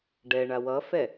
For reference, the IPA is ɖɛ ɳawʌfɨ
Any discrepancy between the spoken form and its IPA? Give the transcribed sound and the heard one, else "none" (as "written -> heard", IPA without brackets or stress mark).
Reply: ɨ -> ɛ